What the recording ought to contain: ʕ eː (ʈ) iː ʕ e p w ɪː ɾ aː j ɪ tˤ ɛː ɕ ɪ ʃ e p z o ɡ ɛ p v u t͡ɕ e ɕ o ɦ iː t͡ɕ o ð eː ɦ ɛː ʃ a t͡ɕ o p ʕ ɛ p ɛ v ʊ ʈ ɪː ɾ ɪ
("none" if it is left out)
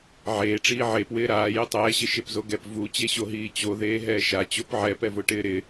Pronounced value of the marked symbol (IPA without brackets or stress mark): ʈ͡ʂ